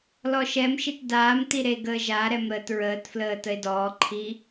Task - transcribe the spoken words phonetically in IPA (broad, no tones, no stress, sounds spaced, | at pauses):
l ɔ ʃ ɛ m ʃ i t d aː m t i ɾ e ɡ əː ʒ a ɾ ɛ m ɾ əː t ɹ əː t f l əː t ə e̯ d ɔː ǃʰ i